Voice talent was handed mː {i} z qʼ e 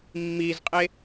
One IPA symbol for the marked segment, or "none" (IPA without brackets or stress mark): i